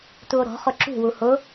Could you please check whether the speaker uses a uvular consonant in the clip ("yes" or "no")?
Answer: yes